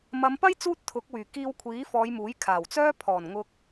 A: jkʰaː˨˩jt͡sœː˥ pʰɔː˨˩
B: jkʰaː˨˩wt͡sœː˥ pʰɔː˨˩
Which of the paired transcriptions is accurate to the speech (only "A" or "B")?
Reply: B